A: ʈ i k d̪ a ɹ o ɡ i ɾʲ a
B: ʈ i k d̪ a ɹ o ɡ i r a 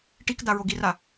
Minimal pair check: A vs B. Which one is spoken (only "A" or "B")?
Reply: B